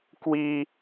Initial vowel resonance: oral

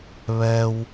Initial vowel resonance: oral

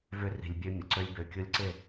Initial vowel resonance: oral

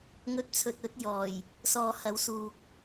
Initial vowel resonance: oral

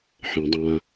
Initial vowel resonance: nasal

